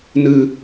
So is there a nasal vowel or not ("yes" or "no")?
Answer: no